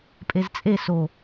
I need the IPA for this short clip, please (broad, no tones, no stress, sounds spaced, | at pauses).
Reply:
pʼ e z t͡sʼ e s o